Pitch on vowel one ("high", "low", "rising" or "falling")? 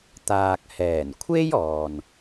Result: low